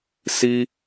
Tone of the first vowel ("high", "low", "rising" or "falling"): high